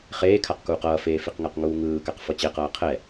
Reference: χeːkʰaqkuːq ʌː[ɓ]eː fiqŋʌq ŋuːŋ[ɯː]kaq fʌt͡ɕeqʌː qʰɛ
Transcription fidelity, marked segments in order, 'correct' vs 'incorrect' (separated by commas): incorrect, correct